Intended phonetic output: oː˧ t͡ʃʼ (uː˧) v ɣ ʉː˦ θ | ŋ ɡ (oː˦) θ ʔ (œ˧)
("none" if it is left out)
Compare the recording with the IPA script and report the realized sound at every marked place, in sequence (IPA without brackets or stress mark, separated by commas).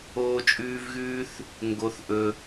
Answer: ʉː˧, o˦, ɵ˧